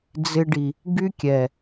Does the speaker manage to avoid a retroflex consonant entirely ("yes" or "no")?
no